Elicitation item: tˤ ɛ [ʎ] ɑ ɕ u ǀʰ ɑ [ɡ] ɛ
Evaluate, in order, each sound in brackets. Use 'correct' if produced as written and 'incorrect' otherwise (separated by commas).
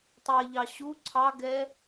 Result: correct, correct